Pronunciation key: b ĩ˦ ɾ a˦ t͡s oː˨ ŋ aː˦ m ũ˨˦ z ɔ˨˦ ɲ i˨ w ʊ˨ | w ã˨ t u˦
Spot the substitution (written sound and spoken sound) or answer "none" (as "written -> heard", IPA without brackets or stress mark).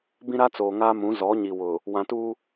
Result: none